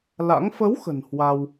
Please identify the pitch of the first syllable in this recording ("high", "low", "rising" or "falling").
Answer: rising